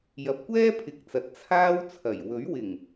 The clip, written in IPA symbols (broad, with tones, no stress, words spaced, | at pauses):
jɐ˨˥p̚kʷɛː˥pʰɪ˨k̚t͡sɐ˨t̚ t͡sʰaː˥wt͡sʰɐ˨˩j wɵ˨˥ɥwɪ˨˩ŋ